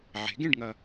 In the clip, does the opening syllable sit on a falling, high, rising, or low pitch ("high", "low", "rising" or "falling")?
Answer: rising